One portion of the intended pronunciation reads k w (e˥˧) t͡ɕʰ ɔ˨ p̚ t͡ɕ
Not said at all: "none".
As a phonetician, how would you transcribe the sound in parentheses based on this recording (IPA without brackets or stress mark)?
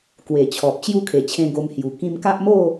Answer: e˨˩